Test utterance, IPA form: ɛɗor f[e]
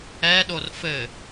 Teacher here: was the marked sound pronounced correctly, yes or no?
no